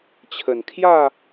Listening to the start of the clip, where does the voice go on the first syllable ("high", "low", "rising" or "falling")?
low